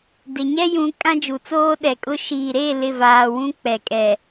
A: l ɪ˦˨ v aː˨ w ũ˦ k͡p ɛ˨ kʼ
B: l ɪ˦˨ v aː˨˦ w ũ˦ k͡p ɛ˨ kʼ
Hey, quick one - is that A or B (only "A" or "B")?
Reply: A